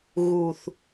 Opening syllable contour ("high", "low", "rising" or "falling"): low